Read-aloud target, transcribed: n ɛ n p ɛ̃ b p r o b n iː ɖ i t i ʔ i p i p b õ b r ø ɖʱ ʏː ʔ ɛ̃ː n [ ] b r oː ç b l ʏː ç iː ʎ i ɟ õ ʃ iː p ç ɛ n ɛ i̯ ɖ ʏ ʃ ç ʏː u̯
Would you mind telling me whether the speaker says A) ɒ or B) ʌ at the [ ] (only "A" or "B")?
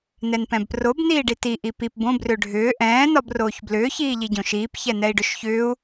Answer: A